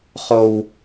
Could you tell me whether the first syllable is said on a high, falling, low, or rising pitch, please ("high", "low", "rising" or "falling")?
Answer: high